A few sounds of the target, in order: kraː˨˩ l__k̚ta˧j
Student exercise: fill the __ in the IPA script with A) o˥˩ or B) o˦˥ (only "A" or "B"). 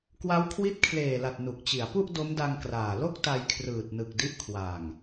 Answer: A